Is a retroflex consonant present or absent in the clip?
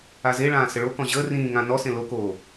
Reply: present